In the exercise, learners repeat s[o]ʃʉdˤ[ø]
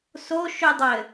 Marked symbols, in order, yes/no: yes, no

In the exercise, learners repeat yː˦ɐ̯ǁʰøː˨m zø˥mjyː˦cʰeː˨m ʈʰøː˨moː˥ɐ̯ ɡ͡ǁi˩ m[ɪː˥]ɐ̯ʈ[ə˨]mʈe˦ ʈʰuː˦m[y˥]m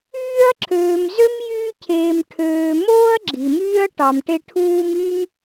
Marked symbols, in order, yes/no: no, no, yes

